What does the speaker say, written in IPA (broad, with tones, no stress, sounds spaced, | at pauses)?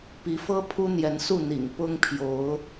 p i˨˦ f ɤ˦ pʰ u˦ n̪ j ɛ˨˦ n s u˥˨ n̪ ḭ˨˩ ŋ p ʊ˦ ŋ pʰ j o˨˦ ʊ̯